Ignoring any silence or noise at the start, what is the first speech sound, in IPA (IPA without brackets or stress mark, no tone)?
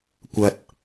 kʷ